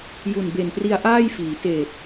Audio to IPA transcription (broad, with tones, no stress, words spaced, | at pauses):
ju˨˩nbe˨˩npri˧a̯ ʔaː˥˩jfiː˩˦ teː˨˩t̚